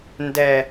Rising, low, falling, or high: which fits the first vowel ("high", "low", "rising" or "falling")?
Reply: low